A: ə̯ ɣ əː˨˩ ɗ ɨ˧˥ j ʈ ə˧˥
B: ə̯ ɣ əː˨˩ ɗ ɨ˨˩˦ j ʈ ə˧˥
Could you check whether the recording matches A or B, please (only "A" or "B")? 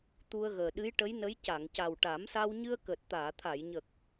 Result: A